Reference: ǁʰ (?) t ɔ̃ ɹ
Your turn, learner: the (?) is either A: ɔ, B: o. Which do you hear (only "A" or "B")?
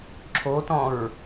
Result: B